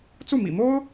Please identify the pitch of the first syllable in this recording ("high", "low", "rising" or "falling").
falling